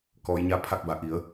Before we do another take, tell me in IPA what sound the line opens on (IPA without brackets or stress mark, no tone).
k